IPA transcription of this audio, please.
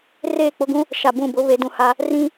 r eː˦˨ k͡p ʊ˦ ɡ ũ˦ | ʃ a˨ b ũ˦˨ b ʊ˦ β e˨˦ d ũ˨ h a˦ | r ĩ˦

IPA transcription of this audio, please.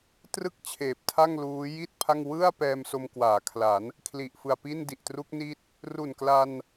t r ɯ˥˩ k̚ t͡ɕʰ eː˨˩ p̚ tʰ a˥˩ ŋ l uː˦˥ j i˥˩ t̚ pʰ a˥˩ ŋ w ɯ˥˩ a̯ p ɛː˧ m s o˧ m k w aː˩˦ kʰ l a˩˦ n | kʰ l i˨˩ ʔ f ɯ˨˩ a̯ p i˥˩ n d i˨˩ ʔ t r u˦˥ k̚ n i˦˥ t̚ | r u˨˩ n k l a˧ n

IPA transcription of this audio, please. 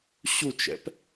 ɕ u t͡ʃ ɛ̰ p

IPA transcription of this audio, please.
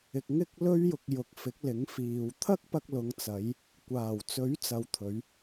ɪ˧ k̚ ŋ ɪ˥ k̚ l ɵ˥ ɥ j ʊ˧ k̚ j ʊ˨˥ k̚ f ɪ˨˥ k̚ l ɪ˨˥ ŋ f iː˨ w t̪ʰ ɐ˥ k̚ p ɐ˧ k̚ l ʊ˨˧ ŋ t͡s ɐ˨˧ j | kʷ aː˨˩ w t͡s ɵ˨˥ ɥ t͡s ɐ˨˧ w t̪ʰ ɵ˨˧ ɥ

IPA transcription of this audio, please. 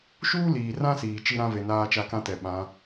ʃ uː˦ l iː˨ r ã˦ s iː˨ t͡ʃ i˦ ɾ ã˦ v e˨ n aː˦ t͡ʃ a˦ k ã˦ t ɛ˨ ɓ ã˨˦

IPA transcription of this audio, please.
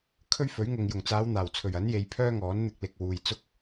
kʰ ɵ˥ ɥ f ɵ˨˥ ɥ ŋ ʊ˨ ŋ j ʊ˨˩ ŋ t͡s aː˨˧ w n̪ aː˨˩ w t͡sʰ ɵ˨˩ ɥ ɐ˨˥ n j e˨˧ j pʰ œː˥ ŋ ɔː˨˥ n n̪ ɪ˧ k̚ l ɪ˨ k̚ w uː˨ j t͡s ʊ˥ k̚

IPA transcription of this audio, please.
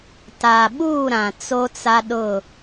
t a˨ ɓ uː˦˨ ɾ ã˨ t͡s o˦ t͡s a˦ ɗ ʊ˦˨

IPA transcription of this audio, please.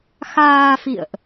x aː˧ f ḭ˧˨ ə̯ ʔ

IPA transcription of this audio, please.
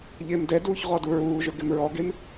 ʎ ɪː m d ɛ d uː ç ʁ ɔ d u ɹ uː ʒ ʊ ɡ ɪ m ɹ ɔ ɡ e m

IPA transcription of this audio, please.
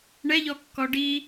ɳ ɛ ʎ ɔ kː ɔ ɖ i

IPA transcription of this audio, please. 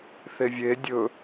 θ e vʲ e dʲ ɵ

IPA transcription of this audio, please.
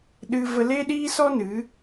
ɗ ɨ˦ v ə˧ l e˦ ɗ iː˦ s ɔ˦ n ɨ˨˦

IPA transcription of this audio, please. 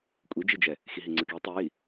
kʷʼ i d͡ʒ i d͡ʒ ɛ | x i ɦ i ŋ͡ǀ ɯ k i tˤ e j i

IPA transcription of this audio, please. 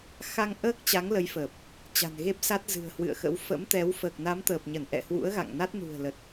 x a˧ ŋ ʔ əː˦˥ k̚ t͡ɕ a˨˦ ŋ l ə˨˦ j f əː˨˩ p̚ | t͡ɕ a̤˨˩ n ɣ e˦˥ p̚ s a˦˥ t̚ z ɨ̤˨˩ ə̯ h w ɨ̰˧˨ ə̯ x ə̰˧˥ w f ə̰˧˥ m t̪ ɛ˨˦ w f əː˨˩ k̚ n a˨˦ m t̪ əː˨˩ p̚ ɲ ə˧˩ n ʔ ɛ̰˧˨ h w ṵ˧˥ ə̯ ɣ a̰˧˨ ŋ n a˦˥ t̚ n ṳ˨˩ ə̯ l ə˨˩ t̚

